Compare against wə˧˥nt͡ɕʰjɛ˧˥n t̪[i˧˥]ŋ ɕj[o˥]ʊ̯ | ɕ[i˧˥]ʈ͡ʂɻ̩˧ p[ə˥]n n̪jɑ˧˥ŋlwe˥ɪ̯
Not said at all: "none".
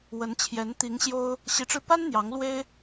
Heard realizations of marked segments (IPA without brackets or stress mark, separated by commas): i˧˥, o˥, i˧˥, a˥